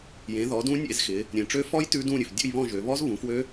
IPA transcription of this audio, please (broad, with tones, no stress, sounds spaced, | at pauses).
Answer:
j ẽ˨˦ ð ɔ˨˦ d ũ˦˥ nʲ ḛ˥˧ z x ɪ˨˦ | ɾʲ ẽ˨ ʈ͡ʂ ø˦˥ f ɔ˦˥ j t ʉ˦˥ d ũ˥˧ ɾʲ ʉ˨ f dʲ ṵ˥˧ j β ɔ̃˥˧ ʒ ø˨˦ β ɔ˦˥ z β ũ˨˦ f w ø˦˥